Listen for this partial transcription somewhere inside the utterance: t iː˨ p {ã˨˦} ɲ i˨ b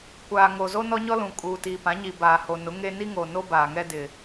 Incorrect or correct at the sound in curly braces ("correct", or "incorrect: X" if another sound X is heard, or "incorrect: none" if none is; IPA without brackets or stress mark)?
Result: correct